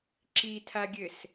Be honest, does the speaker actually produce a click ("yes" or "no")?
yes